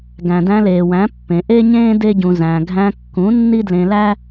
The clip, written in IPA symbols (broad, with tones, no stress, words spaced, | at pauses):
ɡæ̃˨dæ̃˧leː˨wæ̃˨˦ pːẽ˨ʔe˦ɲẽː˦ de˦ɟũ˧ zæ̃˧ ɡʱæ̃˧kːũ˨˦ nːi˦dlẽ˧læ˦